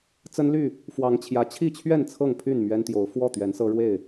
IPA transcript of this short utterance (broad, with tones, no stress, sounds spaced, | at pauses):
t͡s ə˦ n l y˥˨ | f w ɑ˨˦ ŋ t͡ɕʰ j ä˨˦ t͡ɕʰ i˥˨ t͡ɕʰ ɥ ɛ˥˨ n t͡sʰ ɤ˥˨ ŋ pʰ y˥˨ n m ɥ ɛ˦ n t̪ j o˨˦ ʊ̯ f w ɔ˥˨ t̪ ɥ ɛ˨˦ n s ɤ˦ ɻ w e˥˨ ɪ̯